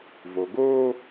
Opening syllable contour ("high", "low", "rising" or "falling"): low